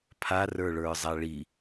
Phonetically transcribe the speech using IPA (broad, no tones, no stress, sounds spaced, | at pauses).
pʰ a r ə˞ ɭ ə˞ zˤ a ɭ i